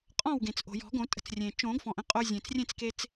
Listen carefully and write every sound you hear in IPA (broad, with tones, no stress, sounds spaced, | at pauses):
qʼ ɔ̃˥˨ w ɡ ẽ˩ t͡s ʔ o̤˩ j ɔ̤˨˩˦ ɡ õ˨˩˦ tʼ ə̤˧ t͡s rʲ ẽ˩ t͡ʃ õ˨˩˦ ɡ f ɔ̃˩ ʔ ə̃˥˨ qʼ o˧ zʲ ẽ˩ t͡s rʲ ẽ˥˨ t͡s k e˧ t͡s